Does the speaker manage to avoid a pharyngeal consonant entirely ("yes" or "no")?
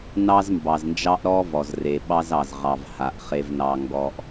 yes